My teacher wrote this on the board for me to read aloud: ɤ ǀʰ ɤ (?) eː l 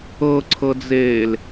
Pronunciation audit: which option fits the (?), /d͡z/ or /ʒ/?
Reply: d͡z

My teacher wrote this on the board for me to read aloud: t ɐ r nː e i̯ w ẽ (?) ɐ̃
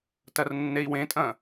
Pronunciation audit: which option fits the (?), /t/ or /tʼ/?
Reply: tʼ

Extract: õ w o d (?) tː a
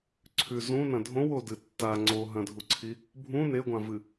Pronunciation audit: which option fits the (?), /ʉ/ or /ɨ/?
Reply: ɨ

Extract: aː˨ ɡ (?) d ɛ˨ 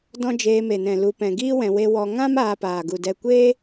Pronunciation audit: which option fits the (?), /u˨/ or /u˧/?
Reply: u˨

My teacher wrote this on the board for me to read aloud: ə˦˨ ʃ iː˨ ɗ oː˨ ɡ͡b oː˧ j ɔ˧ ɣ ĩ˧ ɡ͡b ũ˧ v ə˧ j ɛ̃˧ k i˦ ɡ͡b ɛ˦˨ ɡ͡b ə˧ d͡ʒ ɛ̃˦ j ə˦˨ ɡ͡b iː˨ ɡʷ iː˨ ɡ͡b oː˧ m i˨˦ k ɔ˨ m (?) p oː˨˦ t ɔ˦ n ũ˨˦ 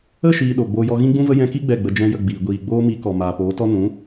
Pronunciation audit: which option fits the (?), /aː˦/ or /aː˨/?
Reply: aː˨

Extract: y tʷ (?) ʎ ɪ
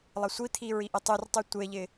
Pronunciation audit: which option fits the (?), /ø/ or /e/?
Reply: e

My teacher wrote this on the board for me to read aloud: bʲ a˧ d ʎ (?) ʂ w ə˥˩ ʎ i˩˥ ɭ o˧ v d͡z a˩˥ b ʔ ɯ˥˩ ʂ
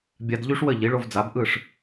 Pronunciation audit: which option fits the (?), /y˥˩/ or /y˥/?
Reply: y˥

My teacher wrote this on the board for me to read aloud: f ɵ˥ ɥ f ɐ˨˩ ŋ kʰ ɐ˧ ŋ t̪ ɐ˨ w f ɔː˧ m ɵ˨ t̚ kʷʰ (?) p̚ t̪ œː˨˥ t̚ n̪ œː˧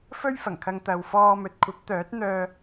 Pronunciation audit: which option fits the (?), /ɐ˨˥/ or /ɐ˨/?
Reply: ɐ˨˥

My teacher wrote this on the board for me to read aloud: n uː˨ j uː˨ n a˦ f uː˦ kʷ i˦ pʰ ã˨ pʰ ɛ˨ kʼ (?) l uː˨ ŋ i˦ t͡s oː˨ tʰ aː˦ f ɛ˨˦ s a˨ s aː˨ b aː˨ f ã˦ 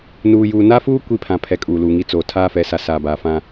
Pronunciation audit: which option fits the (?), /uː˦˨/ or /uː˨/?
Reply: uː˨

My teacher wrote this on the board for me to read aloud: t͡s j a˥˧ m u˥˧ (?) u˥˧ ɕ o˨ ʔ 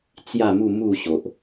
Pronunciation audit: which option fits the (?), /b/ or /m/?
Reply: m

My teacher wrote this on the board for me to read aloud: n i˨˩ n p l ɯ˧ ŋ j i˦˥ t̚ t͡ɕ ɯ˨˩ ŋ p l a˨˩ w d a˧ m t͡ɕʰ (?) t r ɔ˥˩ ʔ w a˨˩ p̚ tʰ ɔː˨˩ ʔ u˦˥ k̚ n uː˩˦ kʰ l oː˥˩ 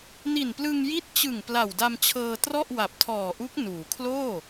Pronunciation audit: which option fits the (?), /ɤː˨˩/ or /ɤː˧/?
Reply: ɤː˧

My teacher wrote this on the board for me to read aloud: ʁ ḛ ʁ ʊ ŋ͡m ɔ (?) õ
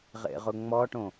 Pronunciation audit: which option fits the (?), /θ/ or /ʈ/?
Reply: ʈ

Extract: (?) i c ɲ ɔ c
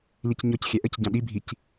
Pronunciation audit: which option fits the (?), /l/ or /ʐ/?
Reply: l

